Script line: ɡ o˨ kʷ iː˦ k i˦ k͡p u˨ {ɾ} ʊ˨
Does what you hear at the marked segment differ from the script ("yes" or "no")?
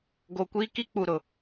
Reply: no